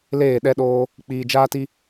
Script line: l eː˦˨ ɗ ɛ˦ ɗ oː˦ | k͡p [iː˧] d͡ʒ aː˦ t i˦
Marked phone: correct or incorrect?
correct